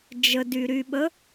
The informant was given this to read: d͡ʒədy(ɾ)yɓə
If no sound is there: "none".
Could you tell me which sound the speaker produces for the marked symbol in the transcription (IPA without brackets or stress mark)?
ɾ